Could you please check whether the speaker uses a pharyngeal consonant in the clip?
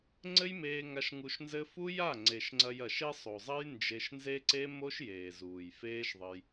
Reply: no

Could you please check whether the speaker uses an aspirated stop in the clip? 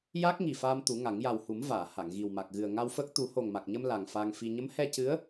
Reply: no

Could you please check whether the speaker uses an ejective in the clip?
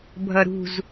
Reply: no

